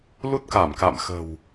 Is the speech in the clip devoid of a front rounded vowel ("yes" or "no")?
yes